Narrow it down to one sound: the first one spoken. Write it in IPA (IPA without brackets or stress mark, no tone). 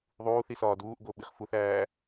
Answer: ðˤ